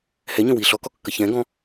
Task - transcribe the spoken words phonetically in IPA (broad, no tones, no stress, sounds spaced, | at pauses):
h ɛ ɲ ə̃ w i ɬ ɔ k ɔ kː ə ç ɛ̃ ɡ ɔ̃